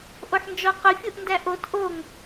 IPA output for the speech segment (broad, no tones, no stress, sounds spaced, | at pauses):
ʔ o ħ n d͡ʒ ɔ q ʊ fʲ u ʔ n d æ ʔ o t ʔ o ŋ